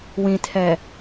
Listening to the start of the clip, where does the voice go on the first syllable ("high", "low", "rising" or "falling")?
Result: low